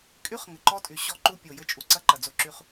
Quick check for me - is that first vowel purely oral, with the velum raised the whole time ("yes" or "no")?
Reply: yes